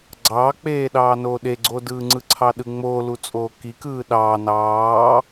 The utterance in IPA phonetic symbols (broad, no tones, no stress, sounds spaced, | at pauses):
ɡ͡ǀ ɑː k͡p eː ɗ ɑː n oː ɗ e ɡ͡ǀ oː d ɯː ŋ͡ǀ ɯ ǀʰ ɑ ɗ ɯ ŋ͡m oː l u t͡sʼ oː k i k ɯː ɗ ɑː n ɑː